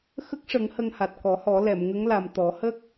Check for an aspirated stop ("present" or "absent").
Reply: absent